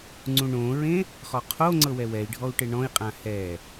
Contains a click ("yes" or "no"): yes